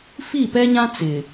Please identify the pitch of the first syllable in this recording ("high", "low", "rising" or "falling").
falling